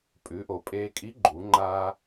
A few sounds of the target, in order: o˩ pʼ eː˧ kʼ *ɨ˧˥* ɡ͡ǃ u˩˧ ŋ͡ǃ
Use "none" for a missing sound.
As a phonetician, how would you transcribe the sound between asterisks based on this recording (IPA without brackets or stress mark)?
i˧˥